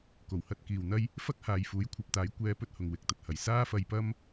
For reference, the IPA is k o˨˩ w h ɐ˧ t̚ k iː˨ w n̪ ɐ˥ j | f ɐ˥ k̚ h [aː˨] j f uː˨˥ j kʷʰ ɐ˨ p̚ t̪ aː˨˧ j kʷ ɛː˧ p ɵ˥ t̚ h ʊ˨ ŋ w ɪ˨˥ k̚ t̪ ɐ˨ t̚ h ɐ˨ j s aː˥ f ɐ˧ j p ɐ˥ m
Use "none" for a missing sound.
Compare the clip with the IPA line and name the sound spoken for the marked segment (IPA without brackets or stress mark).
aː˨